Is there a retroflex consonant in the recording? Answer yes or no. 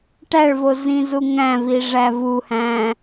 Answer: yes